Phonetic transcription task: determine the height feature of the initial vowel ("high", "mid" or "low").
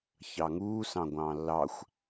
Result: low